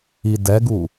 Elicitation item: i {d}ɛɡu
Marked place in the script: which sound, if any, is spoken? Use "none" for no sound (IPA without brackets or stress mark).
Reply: d